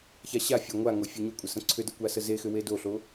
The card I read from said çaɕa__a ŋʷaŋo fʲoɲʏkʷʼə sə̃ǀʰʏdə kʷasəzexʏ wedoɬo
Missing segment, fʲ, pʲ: fʲ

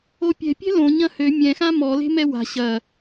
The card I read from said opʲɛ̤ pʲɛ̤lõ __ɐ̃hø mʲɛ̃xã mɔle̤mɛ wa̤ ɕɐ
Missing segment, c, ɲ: ɲ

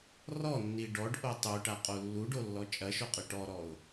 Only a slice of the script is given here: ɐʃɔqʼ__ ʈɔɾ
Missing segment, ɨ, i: ɨ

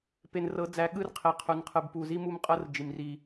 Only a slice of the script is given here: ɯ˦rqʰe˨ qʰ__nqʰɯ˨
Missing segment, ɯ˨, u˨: u˨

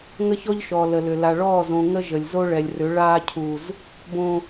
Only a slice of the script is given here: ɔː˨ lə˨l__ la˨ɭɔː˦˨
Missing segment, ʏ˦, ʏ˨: ʏ˨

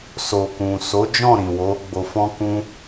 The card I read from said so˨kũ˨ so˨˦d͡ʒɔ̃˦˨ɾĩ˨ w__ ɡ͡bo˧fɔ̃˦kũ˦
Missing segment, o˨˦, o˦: o˨˦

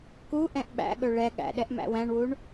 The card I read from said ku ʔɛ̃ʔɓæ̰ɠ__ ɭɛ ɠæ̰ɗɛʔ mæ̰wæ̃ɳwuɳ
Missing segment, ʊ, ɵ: ɵ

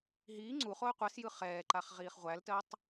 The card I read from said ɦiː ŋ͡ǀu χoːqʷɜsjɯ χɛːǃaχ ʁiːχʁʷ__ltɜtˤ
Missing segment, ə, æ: æ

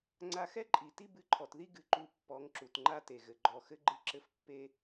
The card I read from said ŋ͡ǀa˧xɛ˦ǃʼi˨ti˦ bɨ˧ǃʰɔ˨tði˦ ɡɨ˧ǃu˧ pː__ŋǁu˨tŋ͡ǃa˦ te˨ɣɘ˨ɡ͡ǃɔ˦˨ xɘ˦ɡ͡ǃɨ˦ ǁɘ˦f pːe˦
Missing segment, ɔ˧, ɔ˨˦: ɔ˨˦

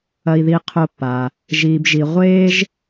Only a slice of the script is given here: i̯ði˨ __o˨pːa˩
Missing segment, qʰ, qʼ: qʰ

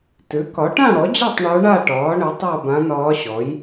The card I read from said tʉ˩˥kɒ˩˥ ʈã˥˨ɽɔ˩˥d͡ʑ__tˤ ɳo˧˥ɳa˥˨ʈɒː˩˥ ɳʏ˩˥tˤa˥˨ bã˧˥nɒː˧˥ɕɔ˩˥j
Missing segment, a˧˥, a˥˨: a˥˨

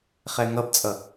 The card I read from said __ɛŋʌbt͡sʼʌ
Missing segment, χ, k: χ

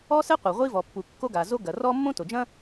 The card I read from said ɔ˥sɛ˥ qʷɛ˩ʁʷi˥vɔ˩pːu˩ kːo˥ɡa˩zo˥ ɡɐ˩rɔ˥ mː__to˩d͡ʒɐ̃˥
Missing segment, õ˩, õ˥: õ˥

